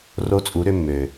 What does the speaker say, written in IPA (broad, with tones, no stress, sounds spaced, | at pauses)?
r o˦ t͡sʼ u˨˦ ɾ ʏ˦ mː ø˨